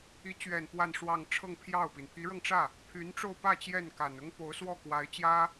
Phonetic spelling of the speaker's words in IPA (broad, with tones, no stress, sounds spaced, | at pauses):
i˧˥ t͡ɕ ɥ ɛ˨˩ n p w a˥˧ n ʂ w ɑ˥˧ ŋ ʈ͡ʂʰ ɤ˥˧ ŋ pʰ j ɑ˥˩ ʊ̯ p i˩ n pʰ i˧˥ ɻ ɤ˧ ŋ ʈ͡ʂ ä˥˩ | pʰ y˧˥ n ʈ͡ʂ o˥˧ ʊ̯ p ä˥˧ t͡ɕ j ɛ˥˩ n k a˨˩ n ʊ˥ ŋ p o˧˥ ʊ̯ s w ɔ˥˩ k w a˧˥ ɪ̯ t͡ɕ j ä˥